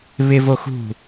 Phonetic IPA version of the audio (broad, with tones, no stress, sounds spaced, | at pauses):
β ɪ˦ v o˦ x ṳ˦˨